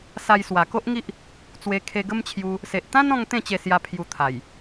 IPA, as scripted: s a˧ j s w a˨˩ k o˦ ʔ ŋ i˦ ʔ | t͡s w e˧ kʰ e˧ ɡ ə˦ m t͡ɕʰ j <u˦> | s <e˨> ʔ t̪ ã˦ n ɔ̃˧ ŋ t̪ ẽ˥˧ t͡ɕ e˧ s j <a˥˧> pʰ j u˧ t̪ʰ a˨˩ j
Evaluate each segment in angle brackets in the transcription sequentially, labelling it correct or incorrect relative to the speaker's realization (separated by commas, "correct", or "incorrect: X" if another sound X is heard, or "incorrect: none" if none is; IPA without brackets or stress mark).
incorrect: u˧, correct, incorrect: a˧